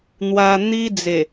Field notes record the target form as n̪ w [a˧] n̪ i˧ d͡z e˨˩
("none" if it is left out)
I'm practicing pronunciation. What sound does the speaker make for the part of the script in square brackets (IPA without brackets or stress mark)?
a˧